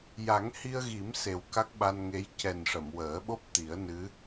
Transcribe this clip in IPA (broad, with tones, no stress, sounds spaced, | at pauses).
j a˨˩˦ ŋ h i˧ ə̯ ɣ i˨˩˦ m s e˨˩ w k a˦˥ k̚ ɓ a˧ n ŋ e˧˥ j c ɛ˨˩ n ʂ ə˨˩˨ m w əː˨˩˦ ɓ o˦˥ p̚ t̪ i˨˩˦ ə̯ n ɨ˧˥